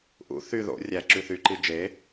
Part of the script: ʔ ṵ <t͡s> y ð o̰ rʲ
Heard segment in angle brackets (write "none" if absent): θ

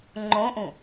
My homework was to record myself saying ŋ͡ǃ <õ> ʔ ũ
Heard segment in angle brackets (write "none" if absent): õ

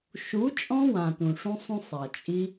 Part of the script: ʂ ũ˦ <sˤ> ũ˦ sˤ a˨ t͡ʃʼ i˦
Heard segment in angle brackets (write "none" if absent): sˤ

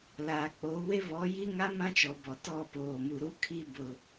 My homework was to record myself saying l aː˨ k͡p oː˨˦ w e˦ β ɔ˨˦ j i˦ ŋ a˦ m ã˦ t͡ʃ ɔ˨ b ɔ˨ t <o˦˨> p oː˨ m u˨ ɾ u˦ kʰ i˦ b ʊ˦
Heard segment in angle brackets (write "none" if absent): ɔ˦˨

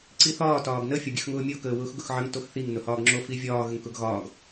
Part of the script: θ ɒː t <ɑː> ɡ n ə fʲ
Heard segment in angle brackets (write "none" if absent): ɒː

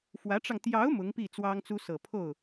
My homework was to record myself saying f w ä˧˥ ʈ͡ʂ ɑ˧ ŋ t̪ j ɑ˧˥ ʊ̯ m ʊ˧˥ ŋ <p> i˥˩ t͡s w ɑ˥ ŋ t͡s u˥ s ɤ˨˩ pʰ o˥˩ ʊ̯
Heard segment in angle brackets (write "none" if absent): p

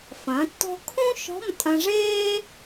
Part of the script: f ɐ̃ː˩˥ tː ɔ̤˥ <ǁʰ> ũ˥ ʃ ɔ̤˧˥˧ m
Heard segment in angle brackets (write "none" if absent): kʰ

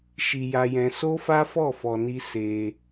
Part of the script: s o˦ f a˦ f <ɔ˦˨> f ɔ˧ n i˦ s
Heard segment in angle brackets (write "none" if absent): ɔ˦˨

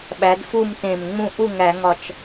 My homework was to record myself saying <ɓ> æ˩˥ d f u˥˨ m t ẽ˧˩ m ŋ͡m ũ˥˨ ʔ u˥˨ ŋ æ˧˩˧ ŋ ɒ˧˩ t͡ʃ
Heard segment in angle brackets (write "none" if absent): ɓ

